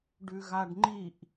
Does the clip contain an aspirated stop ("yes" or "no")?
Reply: no